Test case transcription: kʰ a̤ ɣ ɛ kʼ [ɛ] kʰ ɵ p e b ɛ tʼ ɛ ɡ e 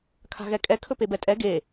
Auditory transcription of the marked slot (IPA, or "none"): ɛ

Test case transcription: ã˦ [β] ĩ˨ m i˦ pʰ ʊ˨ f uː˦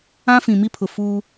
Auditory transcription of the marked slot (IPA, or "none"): f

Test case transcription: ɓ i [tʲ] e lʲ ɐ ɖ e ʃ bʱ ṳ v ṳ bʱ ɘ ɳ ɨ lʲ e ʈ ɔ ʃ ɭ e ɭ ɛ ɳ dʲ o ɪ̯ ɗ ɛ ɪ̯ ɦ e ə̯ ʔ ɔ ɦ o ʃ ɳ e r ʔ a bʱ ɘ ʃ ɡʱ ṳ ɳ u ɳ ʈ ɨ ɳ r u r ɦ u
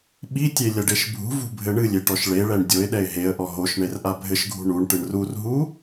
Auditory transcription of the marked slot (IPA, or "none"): tʲ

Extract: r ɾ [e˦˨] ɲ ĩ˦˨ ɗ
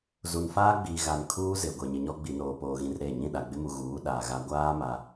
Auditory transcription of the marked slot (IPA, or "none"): e˦˨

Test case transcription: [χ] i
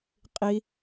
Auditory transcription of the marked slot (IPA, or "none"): qʼ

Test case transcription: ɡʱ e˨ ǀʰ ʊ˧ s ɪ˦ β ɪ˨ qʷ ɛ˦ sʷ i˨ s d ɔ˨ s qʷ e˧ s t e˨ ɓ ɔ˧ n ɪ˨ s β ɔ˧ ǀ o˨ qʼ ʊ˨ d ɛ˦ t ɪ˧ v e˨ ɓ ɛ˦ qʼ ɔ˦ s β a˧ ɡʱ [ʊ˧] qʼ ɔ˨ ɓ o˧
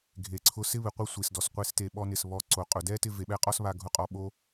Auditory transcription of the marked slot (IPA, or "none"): ʊ˧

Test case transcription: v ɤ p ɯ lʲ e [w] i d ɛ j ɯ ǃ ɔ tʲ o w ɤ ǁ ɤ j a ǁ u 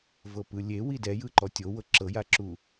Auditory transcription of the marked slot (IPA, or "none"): w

